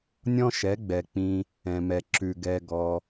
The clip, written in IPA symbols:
nʲ ɔ̃˦ ʃ ɛ˨˦ ɡ͡b ɛ˨ k͡p ĩ˧ | ɛ̃˨ m ɛ˨ ǁ ʉ˨ ɡ ɛ˧ ɡ ɔ˧

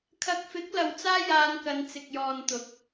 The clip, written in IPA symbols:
kʰ ɐ˨ k̚ f ɪ˨˥ k̚ l ɐ˨ w t͡s aː˥ j aː˧ n k ɐ˨˧ n t͡s ɪ˨ k̚ j ɔː˨ n t̪ ʊ˨˥ k̚

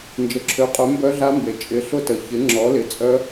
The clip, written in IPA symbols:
n d͡ʒ ə˩ ǁʰ ø˩˧ qʼ œ˩˧ m b œ˧˥ ɮ a˧˥ m b e˩ t͡ʃʼ ɪ˩˥ ɬ ʊ˧˥ t ə˩ ç ɪ˩˥ ŋ͡ǁ ɔ˩˥ l ɪ˩˥ t͡sʼ œ˧˥

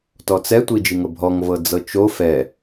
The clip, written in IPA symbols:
t ɔ t͡s ɛ tʷ i d͡ʒ i ŋ ɤ bʱ ɔ ŋ v ɤ d͡z ɤ t͡ʃ o f ɛ

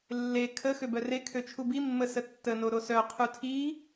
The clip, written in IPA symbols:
lː e kʰ ə x ø b œ r e kʰ ø t͡ʃʰ u b i mː ə s ə tː ə n o ɾ o s œ qʰ u tʰ i

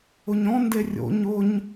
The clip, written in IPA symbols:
ʊ ɲ ɔ̃ n d e rʲ o̰ ɲ ʊ ɲ

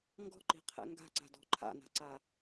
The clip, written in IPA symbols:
ŋ ɡ ɔ̤ ǃ i̤ qʰ ɛ̰ ŋ ɡ a̤ ǀ a̤ d ɔ̤ ǃʰ a̰ n a̤ ǀ a

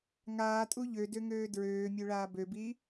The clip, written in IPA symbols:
ŋ aː tʼ u ʎ ø d ø ŋ øː d ɹ øː mʲ ø ɭ aː b ø b i

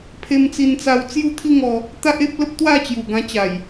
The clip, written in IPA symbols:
pʰ e˧ m t͡s i˧ n t͡s a˧ w t͡s j u˥˧ t̪ʰ i˥˧ ŋ ɔ˧ | t̪ a˦ ʔ e˦ p̚ l ə˦ p̚ t̪ w a˥˧ t͡ɕ j u˨˩ ɡ ã˧ t͡ɕ a˨˩ j

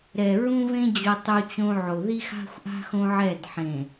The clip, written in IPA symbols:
ɾ ɛ˨ ɹ ũ˦ v ẽ˦ d͡ʑ o˦ tˤ u˦ t͡ɕ õ˦ ʕ o˨ ð i˦ x a̤˦ xʷ ʔ a̤˦ x õ˦ ʕ ɛ˦˨ d ħ ẽ˨

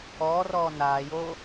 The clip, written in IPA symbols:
ɔː r ɔː n aː j oː

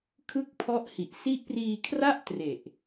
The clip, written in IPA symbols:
kʰ ɯ˦˥ k̚ pʰ ɔ˦˥ ʔ h i˨˩ ʔ s i˦˥ ʔ p r iː˧ kʰ r a˥˩ ʔ t r e˨˩ ʔ

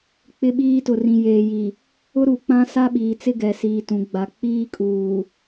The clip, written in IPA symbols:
k͡p ɪ˦ ɓ iː˦ t ʊ˨ r ĩ˨ j eː˨ j i˨ | ʊ˦ ɾ u˨ k͡p ã˦ s a˦ ɓ iː˨ t͡s ɪ˦ ɡ ɛ˨ s iː˨ t ũ˨ ɡ͡b a˨ k͡p iː˦ kʼ uː˨

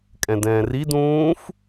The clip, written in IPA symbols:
kʼ ɛ̃ d ɛ̃ː r i d ũː f

